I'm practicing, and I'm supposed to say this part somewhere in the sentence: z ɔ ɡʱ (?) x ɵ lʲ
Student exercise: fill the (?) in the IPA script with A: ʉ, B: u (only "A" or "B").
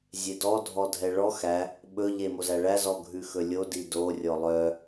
A